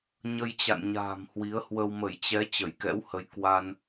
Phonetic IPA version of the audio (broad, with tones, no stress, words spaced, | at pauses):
ɲə˧jt͡ɕa̰˧˨nɲa̤ː˨˩m hwi˨˦ə̯hwə˧w mə˧˩jt͡ɕɛ˨˦ t͡ɕə˧˩jkɛ̰˧˥whə˨˦j kwa˧n